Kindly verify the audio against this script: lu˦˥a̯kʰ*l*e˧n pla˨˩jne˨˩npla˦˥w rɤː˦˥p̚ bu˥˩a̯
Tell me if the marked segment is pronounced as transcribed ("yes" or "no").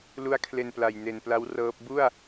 yes